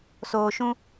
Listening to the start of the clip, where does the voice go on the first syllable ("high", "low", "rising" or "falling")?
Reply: low